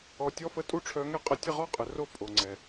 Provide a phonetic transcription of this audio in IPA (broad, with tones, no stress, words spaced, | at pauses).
ɔ˨tʲɔ˦fə˦ tʼu˦ʈ͡ʂʰœ˧ŋɛ˦ qʼə˧ tʲə˦˨ʁɔ˦qʼə˨ro˦˨ pʼo˨ŋ͡ǀɛ˨